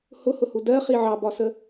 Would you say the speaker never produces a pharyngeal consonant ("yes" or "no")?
no